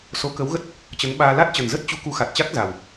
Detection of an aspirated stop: absent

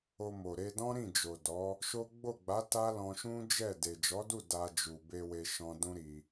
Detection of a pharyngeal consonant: absent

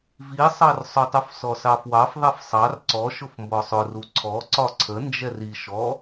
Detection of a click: present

